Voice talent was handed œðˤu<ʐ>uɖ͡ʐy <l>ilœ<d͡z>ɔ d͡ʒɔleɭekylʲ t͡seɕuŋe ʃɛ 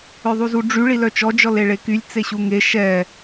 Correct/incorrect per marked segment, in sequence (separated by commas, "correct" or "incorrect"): incorrect, incorrect, incorrect